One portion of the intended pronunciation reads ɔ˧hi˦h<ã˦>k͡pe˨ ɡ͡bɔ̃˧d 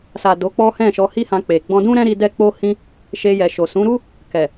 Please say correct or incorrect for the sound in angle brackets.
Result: incorrect